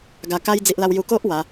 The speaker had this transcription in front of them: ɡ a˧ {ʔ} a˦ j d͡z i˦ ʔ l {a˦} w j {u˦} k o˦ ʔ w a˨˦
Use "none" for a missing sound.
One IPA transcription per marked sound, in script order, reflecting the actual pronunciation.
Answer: k, a˦, u˧

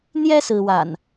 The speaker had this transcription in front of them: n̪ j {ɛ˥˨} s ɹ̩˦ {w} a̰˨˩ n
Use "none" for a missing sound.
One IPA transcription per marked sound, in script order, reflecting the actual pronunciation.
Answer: ɛ˦, w

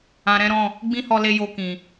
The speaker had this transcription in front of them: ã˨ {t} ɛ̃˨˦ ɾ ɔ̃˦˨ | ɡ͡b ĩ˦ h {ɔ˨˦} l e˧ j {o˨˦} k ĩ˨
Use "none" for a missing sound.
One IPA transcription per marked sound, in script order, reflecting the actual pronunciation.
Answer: ɾ, ɔ˧, o˧

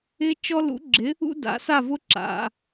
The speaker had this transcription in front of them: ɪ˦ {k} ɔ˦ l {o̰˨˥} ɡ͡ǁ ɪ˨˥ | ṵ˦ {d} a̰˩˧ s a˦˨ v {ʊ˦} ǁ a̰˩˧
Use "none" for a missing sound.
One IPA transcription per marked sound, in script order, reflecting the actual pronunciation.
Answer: t͡ʃ, ṵ˨˥, d, ʊ˦

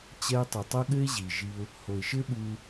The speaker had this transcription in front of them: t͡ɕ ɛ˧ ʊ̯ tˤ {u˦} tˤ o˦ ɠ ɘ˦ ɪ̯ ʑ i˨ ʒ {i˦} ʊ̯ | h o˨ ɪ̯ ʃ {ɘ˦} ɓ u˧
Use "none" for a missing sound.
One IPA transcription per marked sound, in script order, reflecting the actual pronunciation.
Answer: u˨, i˧, ɘ˦

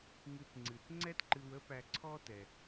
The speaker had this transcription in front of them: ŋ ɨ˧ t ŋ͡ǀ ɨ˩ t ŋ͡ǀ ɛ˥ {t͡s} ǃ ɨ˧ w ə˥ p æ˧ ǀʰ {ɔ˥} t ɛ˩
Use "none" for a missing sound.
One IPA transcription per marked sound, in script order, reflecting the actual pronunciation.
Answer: t, ɔ˥

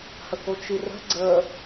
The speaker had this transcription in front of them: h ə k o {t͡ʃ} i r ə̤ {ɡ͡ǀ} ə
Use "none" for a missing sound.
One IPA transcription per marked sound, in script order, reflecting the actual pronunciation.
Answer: t͡ʃ, ɡ͡ǀ

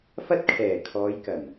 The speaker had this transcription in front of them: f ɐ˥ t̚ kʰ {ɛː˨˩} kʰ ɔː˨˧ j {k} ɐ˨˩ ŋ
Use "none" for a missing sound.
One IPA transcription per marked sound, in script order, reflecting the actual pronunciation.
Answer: ɛː˨˩, k

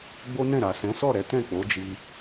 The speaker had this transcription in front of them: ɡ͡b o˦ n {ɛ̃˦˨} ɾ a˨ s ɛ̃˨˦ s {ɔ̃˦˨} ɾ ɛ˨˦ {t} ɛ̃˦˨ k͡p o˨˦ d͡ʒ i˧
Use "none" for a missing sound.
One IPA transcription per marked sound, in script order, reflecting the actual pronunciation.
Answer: ɛ̃˦˨, ɔ˦˨, t

